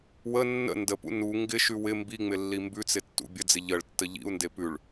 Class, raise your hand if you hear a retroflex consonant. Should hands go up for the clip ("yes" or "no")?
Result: yes